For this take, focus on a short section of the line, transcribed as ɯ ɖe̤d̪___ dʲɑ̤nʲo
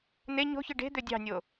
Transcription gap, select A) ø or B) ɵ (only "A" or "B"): A